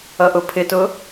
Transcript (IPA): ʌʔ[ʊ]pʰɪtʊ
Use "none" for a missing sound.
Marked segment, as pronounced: ʊ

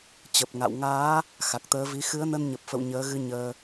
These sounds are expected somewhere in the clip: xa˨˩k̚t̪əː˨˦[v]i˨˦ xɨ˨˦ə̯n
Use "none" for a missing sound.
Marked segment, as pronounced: v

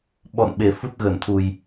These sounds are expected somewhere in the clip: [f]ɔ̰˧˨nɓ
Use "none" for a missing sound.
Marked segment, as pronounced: ɓ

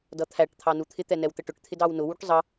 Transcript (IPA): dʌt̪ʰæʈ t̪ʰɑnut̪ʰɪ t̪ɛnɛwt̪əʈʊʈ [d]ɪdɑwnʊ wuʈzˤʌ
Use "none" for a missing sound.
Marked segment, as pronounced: t̪ʰ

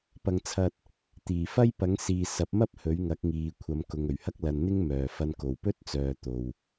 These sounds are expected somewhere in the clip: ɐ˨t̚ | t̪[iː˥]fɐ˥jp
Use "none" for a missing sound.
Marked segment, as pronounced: iː˨˩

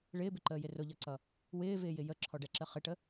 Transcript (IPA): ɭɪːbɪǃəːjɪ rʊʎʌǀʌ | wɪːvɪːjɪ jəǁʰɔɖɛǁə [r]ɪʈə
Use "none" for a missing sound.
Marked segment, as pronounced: χ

